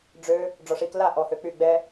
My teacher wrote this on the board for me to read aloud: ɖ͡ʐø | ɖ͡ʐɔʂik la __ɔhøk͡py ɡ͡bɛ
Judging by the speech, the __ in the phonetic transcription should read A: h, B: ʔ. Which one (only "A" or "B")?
B